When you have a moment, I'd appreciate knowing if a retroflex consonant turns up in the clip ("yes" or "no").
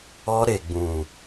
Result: no